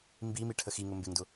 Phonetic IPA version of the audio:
mbimi ʈʰəxiŋʊ mbɪŋdʊ

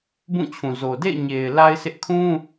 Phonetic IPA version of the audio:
bũ˦˨t͡ɕʰũ˨zo˨ dḛ˦˨ɪ̯ ɲe˨ɪ̯ la˦ɪ̯sɪ˦ʔ kʰũ˦

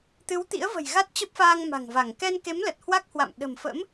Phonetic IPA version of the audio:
t̪ɨ˨˦wt̪ḭ˧˥ə̯və̤˨˩j ɣa˦˥t̚t͡ɕə˦˥p̚faː˧ŋ ma̤˨˩ŋva˧˩ŋ kɛ˧nke˨˦mlə˨˩t̚ hwa˦˥k̚hwa̰˧˨m ɗə̤˨˩mfə̰˧˥m

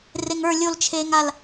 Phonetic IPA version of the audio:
reŋə˞ lʲolt͡ʃʰeːŋal

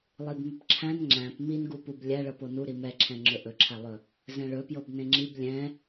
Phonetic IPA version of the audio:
lˠibmɵpǁʰæ̃n ŋ͡ǁæ̃p minɡu publʲæɭɤpo nuɾi mɛǁʰɛ̃ ŋ͡ǁɵʔɵǁʰælˠɵ | zɛ̃ɭɵpjɤb nẽŋ͡ǁib lʲɛ̃

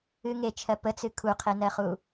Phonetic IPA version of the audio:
ɨ ŋet͡ʃʰɜ pət͡sɨ kʰuqʰenɜχu

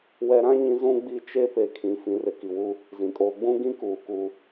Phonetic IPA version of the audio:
wɛ˨ɾã˦ ɲĩ˦ zũ˦ ɡ͡bi˦ t͡ʃe˦pe˨kʰĩ˨ fĩ˨rɪ˨ ki˨wu˦ | zĩ˨kʼoː˦ ɡ͡bũ˦ɡĩ˦kuː˨ ku˦

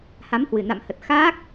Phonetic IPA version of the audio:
ha˨˦mhwɨ˨˩na̰˧˨mhə˨˩t̚ xaː˦˥k̚

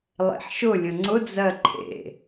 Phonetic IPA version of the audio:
lˠḛħʃʊ lʲə̃ŋ͡ǀʊ d͡zɜǃʰḛ

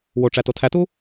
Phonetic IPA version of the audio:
woʈ͡ʂæ totʰætu

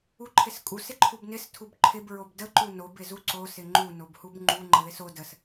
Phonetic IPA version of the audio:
uǃʰɪskʼus ɪǃʰubnɪs tʰubǃʰɪb ɹobdə ǃunob ɪzuǀo sɪŋ͡ǃu nobhubŋ͡ǃu ŋ͡ǃəðɪso dəs

